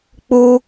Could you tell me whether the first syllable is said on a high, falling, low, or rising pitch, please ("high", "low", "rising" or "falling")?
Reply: high